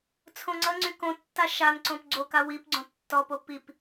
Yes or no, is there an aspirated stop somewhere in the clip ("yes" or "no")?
yes